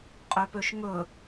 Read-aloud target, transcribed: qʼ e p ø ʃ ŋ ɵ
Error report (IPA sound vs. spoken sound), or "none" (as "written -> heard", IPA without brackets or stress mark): e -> ø